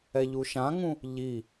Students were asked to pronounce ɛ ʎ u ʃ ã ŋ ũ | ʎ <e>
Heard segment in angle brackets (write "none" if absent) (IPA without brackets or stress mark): i